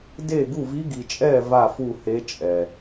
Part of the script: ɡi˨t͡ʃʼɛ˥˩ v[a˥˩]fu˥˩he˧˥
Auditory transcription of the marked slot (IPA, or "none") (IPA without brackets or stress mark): a˥˩